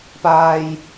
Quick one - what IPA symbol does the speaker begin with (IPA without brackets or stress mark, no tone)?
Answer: p